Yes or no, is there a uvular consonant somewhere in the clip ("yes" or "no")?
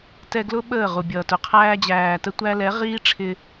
yes